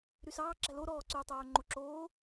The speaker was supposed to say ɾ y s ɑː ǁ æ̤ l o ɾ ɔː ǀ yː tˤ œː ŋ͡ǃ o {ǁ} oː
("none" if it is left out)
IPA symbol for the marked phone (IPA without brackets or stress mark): ǁ